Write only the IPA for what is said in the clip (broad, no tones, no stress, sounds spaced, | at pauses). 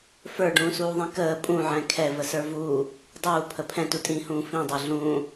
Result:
f ə˞ ɖ ũː s uː ðˤ ĩ k əː pʼ ũ ʕ ɛ̃ kʰ ɛ v ə s ə˞ v uː | dˤ uː pʰ ə pʰ ɛ̃ t u tʼ ĩː h ũː f ĩ dˤ ɛ ɮ ũː